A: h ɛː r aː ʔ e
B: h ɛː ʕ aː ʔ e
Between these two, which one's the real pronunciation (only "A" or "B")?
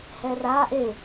A